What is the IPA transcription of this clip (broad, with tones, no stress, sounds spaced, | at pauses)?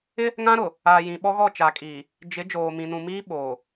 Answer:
ɪ˦ | ŋ ã˦ ɾ ʊ˨ | a˨ j ĩ˨ ɓ ɔ˦ ɣ ɔ˦˨ t͡ʃ a˨ kʼ iː˨ | d͡ʒ ɪ˨˦ d͡ʒ oː˨ m ĩ˨ n ũ˨ m iː˦ ɓ oː˨